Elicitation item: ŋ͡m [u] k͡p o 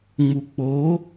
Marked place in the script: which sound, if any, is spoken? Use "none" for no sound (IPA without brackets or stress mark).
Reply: u